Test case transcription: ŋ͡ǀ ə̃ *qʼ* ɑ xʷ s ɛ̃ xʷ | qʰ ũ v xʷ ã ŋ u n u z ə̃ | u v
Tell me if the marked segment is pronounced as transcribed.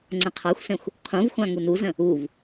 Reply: no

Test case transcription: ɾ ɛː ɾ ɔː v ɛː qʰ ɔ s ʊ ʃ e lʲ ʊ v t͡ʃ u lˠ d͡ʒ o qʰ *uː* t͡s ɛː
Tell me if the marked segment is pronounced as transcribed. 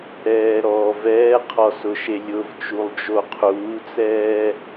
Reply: yes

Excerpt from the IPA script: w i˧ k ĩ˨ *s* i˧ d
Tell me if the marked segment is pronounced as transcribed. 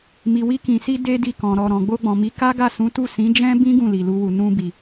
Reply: yes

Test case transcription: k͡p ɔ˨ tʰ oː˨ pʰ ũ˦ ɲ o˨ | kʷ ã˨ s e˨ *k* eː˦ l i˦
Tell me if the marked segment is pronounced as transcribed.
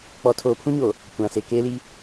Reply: yes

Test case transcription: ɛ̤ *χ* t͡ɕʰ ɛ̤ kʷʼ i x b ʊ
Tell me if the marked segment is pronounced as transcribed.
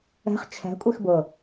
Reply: yes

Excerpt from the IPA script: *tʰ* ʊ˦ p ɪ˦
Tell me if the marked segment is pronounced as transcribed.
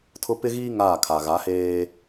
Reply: yes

